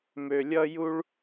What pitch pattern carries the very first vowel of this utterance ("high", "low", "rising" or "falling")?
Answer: low